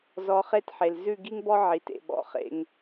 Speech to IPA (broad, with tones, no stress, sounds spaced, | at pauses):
z ɔ˧ χ e˦ t ħ e˨ l z ʉ˦˨ ɡ i˦ ŋ b ɔ˦ ʕ i˨ t ḛ˨ ɓ ɔ̰˨ χ ḛ˧ ŋ